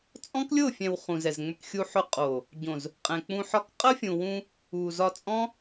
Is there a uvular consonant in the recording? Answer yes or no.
yes